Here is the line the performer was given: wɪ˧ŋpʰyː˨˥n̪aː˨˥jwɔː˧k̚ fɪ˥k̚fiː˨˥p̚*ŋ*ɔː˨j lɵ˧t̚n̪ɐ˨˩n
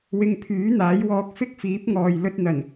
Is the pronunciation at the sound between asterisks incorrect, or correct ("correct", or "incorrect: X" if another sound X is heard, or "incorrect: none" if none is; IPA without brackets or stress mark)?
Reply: correct